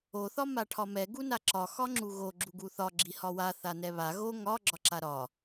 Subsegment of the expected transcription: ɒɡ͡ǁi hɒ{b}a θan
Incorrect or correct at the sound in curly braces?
incorrect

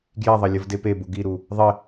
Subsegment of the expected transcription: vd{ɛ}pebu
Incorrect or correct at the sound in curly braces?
incorrect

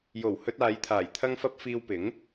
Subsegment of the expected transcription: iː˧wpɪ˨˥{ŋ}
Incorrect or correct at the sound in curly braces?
correct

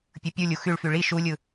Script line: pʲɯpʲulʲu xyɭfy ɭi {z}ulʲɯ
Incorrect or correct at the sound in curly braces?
incorrect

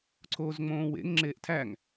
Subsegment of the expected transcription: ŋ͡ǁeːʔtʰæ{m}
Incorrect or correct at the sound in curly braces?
incorrect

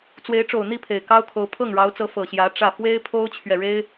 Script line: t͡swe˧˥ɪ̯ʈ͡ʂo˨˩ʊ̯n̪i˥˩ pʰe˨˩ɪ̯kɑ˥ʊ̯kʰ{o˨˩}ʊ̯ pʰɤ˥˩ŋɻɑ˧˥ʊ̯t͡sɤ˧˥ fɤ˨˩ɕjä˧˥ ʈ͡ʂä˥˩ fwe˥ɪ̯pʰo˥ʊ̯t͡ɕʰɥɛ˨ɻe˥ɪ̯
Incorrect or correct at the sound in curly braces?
incorrect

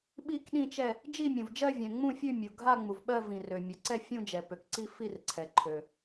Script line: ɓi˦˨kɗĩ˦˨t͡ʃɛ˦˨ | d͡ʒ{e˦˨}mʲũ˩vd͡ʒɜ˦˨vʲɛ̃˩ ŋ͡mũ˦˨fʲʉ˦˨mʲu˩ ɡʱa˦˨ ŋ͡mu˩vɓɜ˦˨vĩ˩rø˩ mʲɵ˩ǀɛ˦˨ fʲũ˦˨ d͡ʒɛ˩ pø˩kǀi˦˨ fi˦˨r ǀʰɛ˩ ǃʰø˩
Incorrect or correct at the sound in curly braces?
incorrect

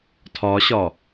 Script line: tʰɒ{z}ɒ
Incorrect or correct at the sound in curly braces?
incorrect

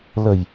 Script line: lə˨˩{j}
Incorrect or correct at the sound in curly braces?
correct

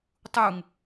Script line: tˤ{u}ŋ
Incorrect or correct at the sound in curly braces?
correct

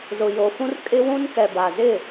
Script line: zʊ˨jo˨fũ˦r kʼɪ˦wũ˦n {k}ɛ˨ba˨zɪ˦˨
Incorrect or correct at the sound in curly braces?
correct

